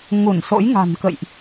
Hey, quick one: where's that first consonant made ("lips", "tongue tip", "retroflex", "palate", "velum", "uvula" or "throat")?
velum